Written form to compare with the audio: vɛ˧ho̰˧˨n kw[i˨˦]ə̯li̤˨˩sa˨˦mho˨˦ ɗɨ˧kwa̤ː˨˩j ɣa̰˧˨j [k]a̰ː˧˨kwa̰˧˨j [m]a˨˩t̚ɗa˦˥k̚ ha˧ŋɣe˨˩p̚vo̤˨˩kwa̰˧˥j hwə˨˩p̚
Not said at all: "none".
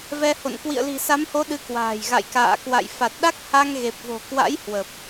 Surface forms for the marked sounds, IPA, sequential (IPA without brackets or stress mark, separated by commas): ḭ˧˨, k, f